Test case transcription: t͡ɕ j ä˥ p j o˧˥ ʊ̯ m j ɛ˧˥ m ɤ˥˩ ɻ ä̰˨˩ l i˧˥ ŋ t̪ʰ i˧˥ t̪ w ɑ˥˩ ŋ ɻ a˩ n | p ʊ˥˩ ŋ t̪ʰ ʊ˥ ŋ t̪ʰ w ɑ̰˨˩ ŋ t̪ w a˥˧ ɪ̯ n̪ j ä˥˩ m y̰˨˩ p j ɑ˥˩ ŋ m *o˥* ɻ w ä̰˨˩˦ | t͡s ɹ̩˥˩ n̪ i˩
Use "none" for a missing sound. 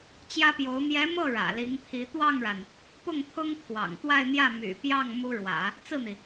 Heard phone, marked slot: u˥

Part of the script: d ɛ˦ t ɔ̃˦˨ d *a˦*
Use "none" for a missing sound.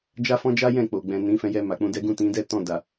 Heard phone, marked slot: a˨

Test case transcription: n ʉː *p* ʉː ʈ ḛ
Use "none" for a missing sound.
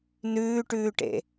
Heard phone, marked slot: ʈ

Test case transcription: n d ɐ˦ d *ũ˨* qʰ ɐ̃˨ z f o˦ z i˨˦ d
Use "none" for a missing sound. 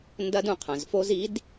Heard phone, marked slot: ũ˨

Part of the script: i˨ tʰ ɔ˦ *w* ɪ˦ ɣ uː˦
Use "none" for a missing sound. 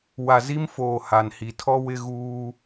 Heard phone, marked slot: w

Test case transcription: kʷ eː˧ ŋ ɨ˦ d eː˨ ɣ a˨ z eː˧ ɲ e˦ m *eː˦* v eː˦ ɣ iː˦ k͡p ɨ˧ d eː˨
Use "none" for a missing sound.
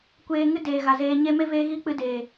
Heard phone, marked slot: e˦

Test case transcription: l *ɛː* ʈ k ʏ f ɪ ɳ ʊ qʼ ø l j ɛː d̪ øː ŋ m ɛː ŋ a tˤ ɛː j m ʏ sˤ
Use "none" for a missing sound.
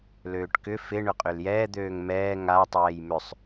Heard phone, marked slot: øː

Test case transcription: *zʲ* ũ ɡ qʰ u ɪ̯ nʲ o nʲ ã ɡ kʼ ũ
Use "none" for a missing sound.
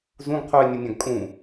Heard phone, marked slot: z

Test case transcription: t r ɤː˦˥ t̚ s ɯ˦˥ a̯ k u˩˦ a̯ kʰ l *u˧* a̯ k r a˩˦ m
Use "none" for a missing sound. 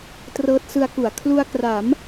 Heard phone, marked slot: u˧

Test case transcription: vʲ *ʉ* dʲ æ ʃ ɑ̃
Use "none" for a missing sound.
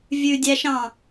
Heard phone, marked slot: ʉ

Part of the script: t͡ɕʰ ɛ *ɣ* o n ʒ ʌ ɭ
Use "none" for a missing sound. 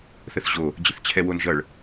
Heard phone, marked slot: w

